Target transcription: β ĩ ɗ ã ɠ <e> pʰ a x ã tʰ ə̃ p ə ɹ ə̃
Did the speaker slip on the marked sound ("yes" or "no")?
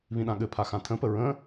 yes